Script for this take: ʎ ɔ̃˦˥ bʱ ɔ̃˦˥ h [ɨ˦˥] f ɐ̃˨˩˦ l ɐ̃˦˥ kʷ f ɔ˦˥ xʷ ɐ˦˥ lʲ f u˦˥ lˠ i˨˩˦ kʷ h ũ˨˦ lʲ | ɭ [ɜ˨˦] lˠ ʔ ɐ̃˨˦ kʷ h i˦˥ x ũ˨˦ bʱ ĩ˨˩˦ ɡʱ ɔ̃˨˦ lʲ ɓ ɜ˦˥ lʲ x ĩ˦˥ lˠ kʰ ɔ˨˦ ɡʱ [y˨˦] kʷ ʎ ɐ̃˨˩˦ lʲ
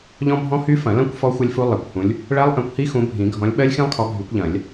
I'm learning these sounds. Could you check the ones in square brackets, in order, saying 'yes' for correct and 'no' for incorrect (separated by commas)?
no, no, yes